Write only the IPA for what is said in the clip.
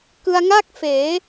k ɯ˧ a̯ ŋ a˥˩ k̚ f eː˩˦

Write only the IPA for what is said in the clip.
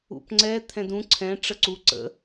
ṵ p ŋ͡ǀ ɛ t̪ʰ ɛ̃ d ũ ǀʰ ɛ̃ ʈ͡ʂ ə ǀ u ǀ ə̰

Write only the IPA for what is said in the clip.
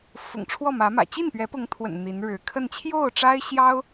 f ʊ̰˨˩ ŋ ʈ͡ʂʰ w ɔ˥˩ m ä˧˥ m ä̰˨˩ t͡ɕ i˥˩ n p ɥ ɛ˧˥ p ʊ˧˥ ŋ t̪ʰ w ə̰˨˩ n n̪ i˧˥ n ɻ ɻ̩˧˥ kʰ ə˥˧ n t͡ɕʰ j o˥˩ ʊ̯ ʈ͡ʂ a˥ ɪ̯ ɕ j ɑ˥ ʊ̯

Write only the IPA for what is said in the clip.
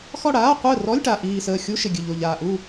x ɔ˥˨ ɽ aː˧˥˧ qʷ əː˥˨ r ɔ˧˥˧ lʲ ʈ a˨˩ ʔ iː˨˩ s əː˨˩ xʲ u˧˥˧ ʃ ɪ˨˩ ɡʲ ɨ˨˩ ʎ o˨˩ ʎ aː˨˩ ʔ u˥˨

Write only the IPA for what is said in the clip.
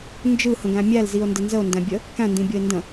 n d͡ʒ ɯ h ə̃ ɡ æ̃ mʲ æ l z i o̯ n d ɘ n z ə o̯ n d æ̃ bʲ ə | k æ̃ n d ĩ bʲ ɤ e̯ n d ə̃

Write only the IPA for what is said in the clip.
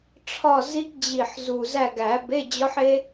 ʈ͡ʂʰ ɒ˦˨ z i˦˥ ɡ d͡ʑ i˨˩ ħ z u˨˩ z æ˦˨ ɡ æ˨˩˦ b e˧˥˧ d͡ʑ ɒ˦˥ ħ e˦˥

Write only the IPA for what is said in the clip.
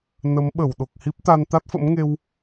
n ə˨˦ m ɓ ə˧˩ w ɗ o˨˩ k̚ h i˦˥ p̚ t̪ a˧ n t̪ a˦˥ t̚ f ə̰˧˥ m ŋ e˧ w

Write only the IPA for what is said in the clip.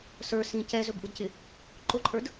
s ə˞ s ĩ c ɛ z ɵ b ʔ u d c ɪ | ǃ ʊ ǃʼ ə˞ d

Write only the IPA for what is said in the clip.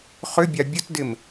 χ ʏ bʲ a bʲ ə t d ɪ m

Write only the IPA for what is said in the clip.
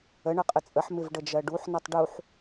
ə ɳ ʌ qʼ ə t͡sʼ ə ħ m ɪ v ɖ ə d͡ʒ ɜ ɖ u ħ n ʌ tˤ ɖ u ħ

